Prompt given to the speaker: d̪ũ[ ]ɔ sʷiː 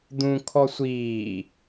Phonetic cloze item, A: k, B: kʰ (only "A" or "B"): B